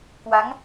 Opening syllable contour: rising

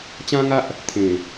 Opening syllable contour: high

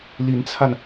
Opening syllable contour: rising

